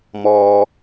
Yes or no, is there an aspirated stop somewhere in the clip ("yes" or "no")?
no